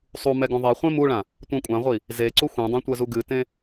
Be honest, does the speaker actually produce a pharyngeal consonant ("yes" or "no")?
no